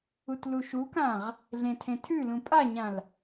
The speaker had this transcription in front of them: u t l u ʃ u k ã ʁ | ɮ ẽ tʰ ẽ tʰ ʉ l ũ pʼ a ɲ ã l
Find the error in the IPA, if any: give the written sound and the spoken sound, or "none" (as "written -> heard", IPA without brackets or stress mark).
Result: none